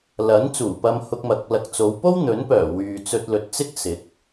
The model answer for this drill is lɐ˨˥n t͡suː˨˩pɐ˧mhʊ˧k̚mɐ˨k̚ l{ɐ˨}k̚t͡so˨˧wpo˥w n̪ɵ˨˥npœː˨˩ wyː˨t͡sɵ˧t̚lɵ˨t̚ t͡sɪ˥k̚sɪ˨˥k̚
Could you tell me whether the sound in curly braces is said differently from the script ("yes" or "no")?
no